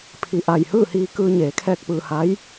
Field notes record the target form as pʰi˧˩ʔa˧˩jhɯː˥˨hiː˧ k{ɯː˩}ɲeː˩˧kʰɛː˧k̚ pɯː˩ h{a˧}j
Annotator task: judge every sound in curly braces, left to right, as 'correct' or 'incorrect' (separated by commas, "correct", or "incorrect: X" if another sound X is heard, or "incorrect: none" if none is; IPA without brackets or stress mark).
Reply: incorrect: ɯː˧, incorrect: a˧˥